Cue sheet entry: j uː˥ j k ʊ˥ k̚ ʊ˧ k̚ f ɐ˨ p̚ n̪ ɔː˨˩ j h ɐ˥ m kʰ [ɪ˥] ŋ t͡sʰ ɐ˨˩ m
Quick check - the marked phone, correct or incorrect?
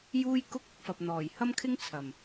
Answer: correct